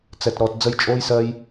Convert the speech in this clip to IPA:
t͡sɛ˨t ɾɔː˨t d͡zə˦j t͡ʃʼoː˦jsɜ˦j

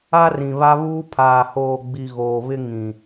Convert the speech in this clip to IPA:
a˦rĩ˨βa˦βuː˦ pʰaː˨hoː˨ɡ͡bi˨ ɣoː˨βɪ˦ŋĩ˨

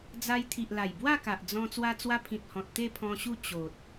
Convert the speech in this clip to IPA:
d͡za˧jt̪ʰi˨ʔla˨˩j bwa˥˧ ka˨ʔ d͡zɔ̃˧ t͡swa˧t͡swa˧pʰĩ˨t̚hɔ̃˨t̚ t̪e˥˧pʰɔ̃˧ɕu˥˧ t͡ɕo˨t̚

